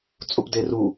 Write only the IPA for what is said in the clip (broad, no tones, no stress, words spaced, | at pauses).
t͡sʼupderu